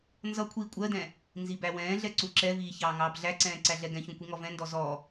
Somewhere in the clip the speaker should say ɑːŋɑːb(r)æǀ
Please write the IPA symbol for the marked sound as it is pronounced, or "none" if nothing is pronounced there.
ɮ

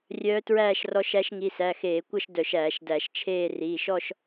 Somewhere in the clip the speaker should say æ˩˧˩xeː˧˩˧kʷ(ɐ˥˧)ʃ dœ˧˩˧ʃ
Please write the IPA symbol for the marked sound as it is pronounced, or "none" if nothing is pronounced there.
ɐ˥˧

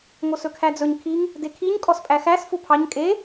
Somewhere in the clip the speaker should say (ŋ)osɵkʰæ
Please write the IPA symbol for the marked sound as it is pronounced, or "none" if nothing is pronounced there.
ŋ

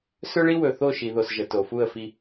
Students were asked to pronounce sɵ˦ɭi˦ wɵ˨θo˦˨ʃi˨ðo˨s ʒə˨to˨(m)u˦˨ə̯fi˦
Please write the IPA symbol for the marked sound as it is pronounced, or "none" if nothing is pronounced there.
f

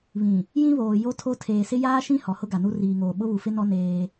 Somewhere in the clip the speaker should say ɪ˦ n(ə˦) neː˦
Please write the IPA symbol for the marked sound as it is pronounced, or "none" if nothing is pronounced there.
ɔ˦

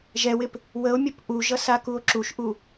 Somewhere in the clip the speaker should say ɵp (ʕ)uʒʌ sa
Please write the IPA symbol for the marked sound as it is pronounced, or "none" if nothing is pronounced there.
ʔ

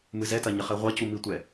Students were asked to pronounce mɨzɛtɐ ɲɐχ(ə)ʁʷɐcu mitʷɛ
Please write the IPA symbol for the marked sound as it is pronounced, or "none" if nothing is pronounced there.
ɛ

